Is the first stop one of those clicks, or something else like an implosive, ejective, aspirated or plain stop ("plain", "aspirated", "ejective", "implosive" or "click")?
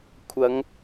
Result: aspirated